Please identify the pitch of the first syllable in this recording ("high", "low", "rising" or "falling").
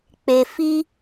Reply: low